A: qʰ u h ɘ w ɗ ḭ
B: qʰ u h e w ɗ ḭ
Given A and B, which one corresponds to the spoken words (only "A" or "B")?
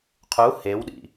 B